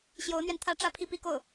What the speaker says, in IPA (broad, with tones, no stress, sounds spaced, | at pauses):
ɕ j o˧˥ ʊ̯ n̪ ɥ ɛ˧ n t̪ʰ ä˥ ʈ͡ʂ ä˥ pʰ i˥˧ p i˥˧ k o˥˩ ʊ̯